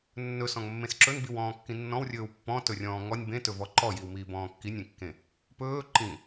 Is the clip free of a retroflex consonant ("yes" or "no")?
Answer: yes